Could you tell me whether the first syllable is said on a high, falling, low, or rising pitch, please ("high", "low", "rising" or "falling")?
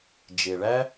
low